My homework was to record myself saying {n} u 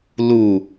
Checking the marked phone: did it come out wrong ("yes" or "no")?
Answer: yes